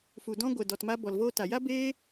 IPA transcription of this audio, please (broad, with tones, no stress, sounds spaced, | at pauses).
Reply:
f u˨ d ɔ̃˧ ɡʷ ɛ˨ d ɔ˨ t m a˧ b ɔ˨ l v oː˧ t a˨ j a˦ b eː˦